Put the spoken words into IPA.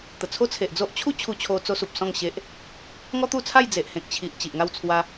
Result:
t̪ ə˨˩ t͡sʰ o˦ t͡sʰ e˨ ʔ d͡z o˦ ʔ t͡ɕʰ u˦ t͡ɕʰ u˧ t͡ɕʰ o˧ t͡s o˧ s u˨ p̚ s ɔ̃˥˧ ŋ ɕ e˦ ʔ | ŋ ɔ˦ t̪ u˥˧ t͡sʰ a˥˧ j d͡z e˨ ʔ h ẽ˨ k̚ t͡ɕʰ i˨ ʔ t͡ɕ i˨ ʔ ŋ a˥˧ w t͡sʰ w a˦

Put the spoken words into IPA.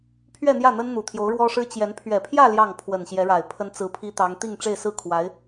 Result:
pʰ ɥ ɛ˥˧ n̪ j ä˥˩ n̪ ə˥ n n̪ u˨˩ t̪ʰ j o˧˥ ʊ̯ ɻ w ɔ˥ ʂ ɻ̩˥ t͡ɕ j ɛ˧˥ n pʰ ɥ ɛ˨˩ pʰ j ä˥˧ l j ɑ˥˩ ŋ pʰ w ə˨˩ n ɕ j ɛ˧˥ ɻ a˨˩ ɪ̯ pʰ ə˥ n t͡s ɹ̩˧˥ pʰ i˥ t̪ ɑ˧˥ ŋ t̪ i˥˧ ŋ ʈ͡ʂ e˥˧ ɪ̯ s ɹ̩˥˩ kʰ w a˧˥ ɪ̯

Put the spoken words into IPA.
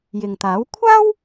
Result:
j ɪ˨ ŋ t̪ aː˨˥ w kʷʰ aː˥ w

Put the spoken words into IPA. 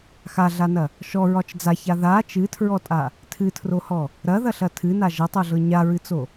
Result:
x a ɮ a n ɐ | ʃ ɔ ɹ ɒ t͡ʃ d͡z a ç a ð a t͡ʃ ɨ tʰ ɹ ɔ tʼ a | tʰ ɨ tʰ r o h ɔ | ɾ ɐ ð ɐ ɬ ɐ tʰ ɨ n a ʒ ɐ tˤ o ɮ ɤ ɲ a ɹ ɨ t͡s o

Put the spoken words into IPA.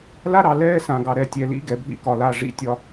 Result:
l a˦ ɾ ɑ˨ l ɛː˦ s ã˨ ɡ ɑ˨ ɾ ɛ˨ tʲ ɛ˨ l ḭ˦ ɡ ɛ˨ bʱ ḭ˦ k ɒ˨ l a˦˨ ʐ ḭ˦˨ tʲ ɒ˦

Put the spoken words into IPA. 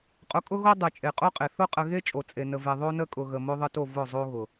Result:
qʼ ʊ˨˦ kʼ ʊ˦ ɣ o˦ dˤ e˨ t͡ʃʼ e˨ qʼ o˦ qʼ e˨ θ ʊ˦ qʼ ə˨ ɣ e˦ t͡ʃʼ o˨ t͡sʼ e˨ n ə˨ v e˨ ðˤ o˦ n ə˦ kʼ ʊ˨ ɣ ə˨ m o˦ ðˤ ə˦ t o˦˨ v ʊ˦˨ zˤ o˦ ɣ ʊ˨

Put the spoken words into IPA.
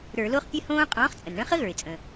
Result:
ɾ ə˞˧˩˧ l o˦˥ χ pʲ ɘ˦˥ h õː˦˥ qʼ ɔ̃ː˨˥ χ t͡sʼ ə˩ n ɳ ə̃˦˥ χ ə˦˥ ɣ ə˞˩ ɪ̯ t͡sʼ ə̃˩

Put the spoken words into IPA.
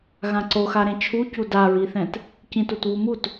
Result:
ɣ ã ǀ o x a ɾ ẽ t͡ʃʰ u c u d a ɹ i θ ɛ̃ t | c ĩ t u t β u m u t

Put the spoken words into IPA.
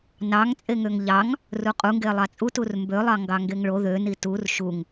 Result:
n ɑ ŋ t͡sʼ e ŋ ø ŋ ʎ ɑ ŋ | r u qʼ u ŋ ɡ e lˠ ɑ t͡sʼ u t u r m b ø lˠ ɑ ŋ ɡ ɑ ŋ ɡ e ŋ ɭ o ð ø n i t u r ʃ u ŋ

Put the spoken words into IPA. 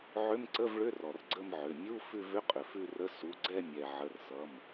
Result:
ʕ ʏ˧˥˧ m ǀ ə˧˥˧ v ɭ ʏ˧˥˧ r ɔ˩ r ɡ͡ǀ ə˦˨ m ʕ ʏ˩˧˩ mʲ u˧˥˧ f ʉ˦˨ v ʏ˧˥˧ qʼ ʏ˩ f ʉ˦˨ r ə˧˥˧ s u˩˧˩ ɡ͡ǀ ɛ˦˨ mʲ ɛ˩ ʕ ə˩˧˩ r s ʌ˩˧˩ m

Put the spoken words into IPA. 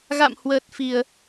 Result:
ɣ a̰˧˨ m h w əː˨˩ t̚ f i˧˩˨ ə̯

